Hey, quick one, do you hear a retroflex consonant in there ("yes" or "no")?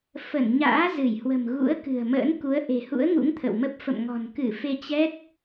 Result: no